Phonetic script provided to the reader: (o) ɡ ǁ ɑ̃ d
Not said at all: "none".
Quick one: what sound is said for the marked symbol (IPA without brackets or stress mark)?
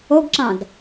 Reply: o